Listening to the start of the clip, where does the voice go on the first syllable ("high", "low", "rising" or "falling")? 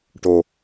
low